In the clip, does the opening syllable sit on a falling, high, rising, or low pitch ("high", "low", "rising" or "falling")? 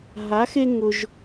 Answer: rising